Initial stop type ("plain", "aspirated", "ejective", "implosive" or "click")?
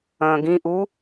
plain